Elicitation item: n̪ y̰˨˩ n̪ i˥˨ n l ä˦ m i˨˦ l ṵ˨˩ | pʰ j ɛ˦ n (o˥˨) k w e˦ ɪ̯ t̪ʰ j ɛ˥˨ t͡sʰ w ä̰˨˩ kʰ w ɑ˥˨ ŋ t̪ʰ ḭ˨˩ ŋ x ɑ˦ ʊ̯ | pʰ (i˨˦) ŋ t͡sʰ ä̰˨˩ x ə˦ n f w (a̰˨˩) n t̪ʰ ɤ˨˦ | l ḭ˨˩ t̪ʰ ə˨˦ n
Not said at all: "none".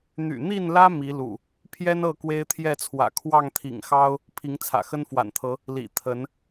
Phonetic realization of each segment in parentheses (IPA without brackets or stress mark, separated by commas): ɤ˥˨, i˨˦, a̰˨˩